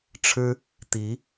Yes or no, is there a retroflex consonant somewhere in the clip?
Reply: yes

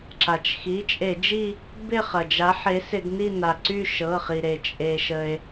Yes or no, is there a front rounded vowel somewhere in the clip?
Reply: yes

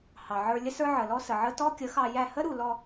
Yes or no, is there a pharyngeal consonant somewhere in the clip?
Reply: yes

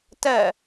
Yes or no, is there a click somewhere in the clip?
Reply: no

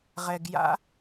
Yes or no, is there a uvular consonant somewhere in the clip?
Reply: yes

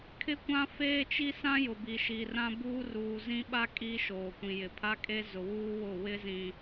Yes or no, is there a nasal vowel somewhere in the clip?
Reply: yes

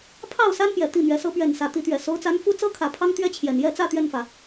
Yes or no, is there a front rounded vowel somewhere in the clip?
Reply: no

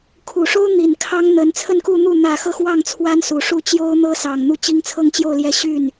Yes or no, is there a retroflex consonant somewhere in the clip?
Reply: yes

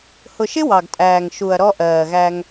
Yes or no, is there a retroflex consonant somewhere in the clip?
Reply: no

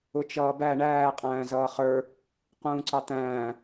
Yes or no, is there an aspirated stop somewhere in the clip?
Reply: no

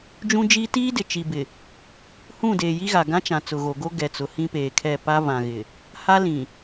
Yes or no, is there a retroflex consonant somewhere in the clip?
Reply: no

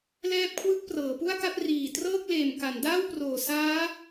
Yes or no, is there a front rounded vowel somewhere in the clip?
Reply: no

